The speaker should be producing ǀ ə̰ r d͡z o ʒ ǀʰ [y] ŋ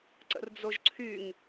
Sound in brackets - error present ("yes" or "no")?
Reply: no